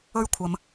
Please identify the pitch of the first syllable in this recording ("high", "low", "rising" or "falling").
high